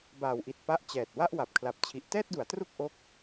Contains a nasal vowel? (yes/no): no